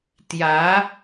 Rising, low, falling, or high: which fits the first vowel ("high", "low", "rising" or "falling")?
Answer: rising